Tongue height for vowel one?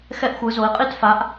mid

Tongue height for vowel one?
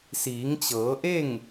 high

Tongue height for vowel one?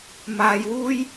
low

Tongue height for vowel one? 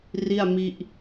high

